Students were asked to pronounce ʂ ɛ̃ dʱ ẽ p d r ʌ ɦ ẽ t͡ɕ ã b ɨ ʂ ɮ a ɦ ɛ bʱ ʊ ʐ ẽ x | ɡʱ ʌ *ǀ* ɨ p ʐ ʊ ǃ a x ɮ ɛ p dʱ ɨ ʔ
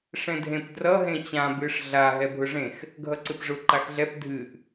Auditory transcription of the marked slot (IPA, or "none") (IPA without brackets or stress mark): ǀ